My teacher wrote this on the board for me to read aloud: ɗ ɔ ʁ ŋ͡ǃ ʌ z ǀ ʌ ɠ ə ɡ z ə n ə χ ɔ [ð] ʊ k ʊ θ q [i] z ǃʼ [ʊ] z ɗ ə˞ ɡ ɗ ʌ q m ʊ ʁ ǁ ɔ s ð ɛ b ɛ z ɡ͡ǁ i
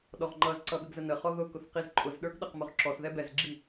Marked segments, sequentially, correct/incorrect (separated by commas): correct, correct, correct